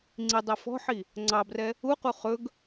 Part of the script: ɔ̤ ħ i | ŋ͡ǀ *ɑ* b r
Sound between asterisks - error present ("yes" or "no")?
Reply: no